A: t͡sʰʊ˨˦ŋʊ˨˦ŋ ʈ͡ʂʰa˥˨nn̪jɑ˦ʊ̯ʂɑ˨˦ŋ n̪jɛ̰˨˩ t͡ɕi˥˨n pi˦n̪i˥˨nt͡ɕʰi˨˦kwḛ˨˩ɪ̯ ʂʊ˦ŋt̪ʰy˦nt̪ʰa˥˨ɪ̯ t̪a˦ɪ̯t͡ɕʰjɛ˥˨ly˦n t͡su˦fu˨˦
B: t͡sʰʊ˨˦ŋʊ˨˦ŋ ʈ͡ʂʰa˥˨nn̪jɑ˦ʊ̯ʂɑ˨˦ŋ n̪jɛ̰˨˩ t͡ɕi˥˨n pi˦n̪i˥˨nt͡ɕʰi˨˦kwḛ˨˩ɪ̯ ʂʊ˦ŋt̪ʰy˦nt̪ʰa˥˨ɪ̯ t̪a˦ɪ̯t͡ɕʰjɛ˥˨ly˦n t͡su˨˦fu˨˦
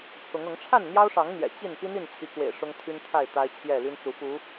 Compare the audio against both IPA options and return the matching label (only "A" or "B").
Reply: B